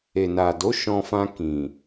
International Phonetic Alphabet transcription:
e˨na˨do˨˦ ʃɔ̃˧fã˧ kĩ˨

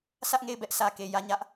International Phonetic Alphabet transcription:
sä˦ʔŋe˦˨ɪ̯bɛ˦ʔ sä˨ke˨ jä˦˨ɲä˦ʔ

